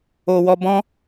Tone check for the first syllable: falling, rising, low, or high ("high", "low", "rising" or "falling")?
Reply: low